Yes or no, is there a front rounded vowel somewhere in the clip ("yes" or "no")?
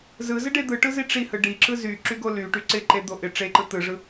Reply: yes